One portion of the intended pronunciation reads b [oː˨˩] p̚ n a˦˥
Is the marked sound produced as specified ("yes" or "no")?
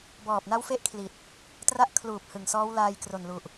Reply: no